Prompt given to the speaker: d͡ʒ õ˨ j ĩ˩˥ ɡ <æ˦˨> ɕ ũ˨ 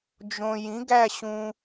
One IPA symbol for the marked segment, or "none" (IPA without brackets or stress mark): æ˦˨